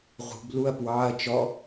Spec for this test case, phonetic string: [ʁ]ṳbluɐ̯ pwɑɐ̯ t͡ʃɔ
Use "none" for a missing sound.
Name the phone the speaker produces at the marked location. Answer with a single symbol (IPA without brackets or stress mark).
ʁ